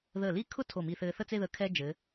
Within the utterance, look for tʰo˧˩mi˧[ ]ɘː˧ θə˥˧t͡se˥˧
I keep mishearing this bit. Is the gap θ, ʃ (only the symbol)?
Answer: θ